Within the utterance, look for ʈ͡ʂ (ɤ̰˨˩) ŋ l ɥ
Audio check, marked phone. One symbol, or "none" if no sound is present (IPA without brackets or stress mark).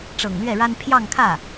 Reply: ɤ̰˨˩